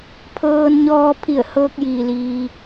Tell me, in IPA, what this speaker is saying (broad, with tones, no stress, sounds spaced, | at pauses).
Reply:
pʰ ɤː˧ n ɲ ɔː˧ pʰ i˧˩ ə̯ h ɤː˧ k̚ j iː˩ l iː˩